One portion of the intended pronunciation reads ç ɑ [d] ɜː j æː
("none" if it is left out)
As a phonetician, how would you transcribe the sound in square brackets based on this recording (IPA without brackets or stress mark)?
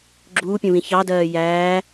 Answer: d